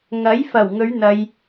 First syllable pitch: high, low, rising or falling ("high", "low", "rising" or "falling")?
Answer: rising